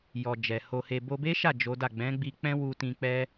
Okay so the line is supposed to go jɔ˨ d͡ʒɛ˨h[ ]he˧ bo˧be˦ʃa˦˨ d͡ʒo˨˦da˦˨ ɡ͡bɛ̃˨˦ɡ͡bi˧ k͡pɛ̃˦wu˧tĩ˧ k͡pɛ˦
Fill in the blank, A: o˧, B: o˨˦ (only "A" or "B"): A